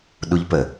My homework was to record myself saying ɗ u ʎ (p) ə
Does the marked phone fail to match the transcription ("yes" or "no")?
no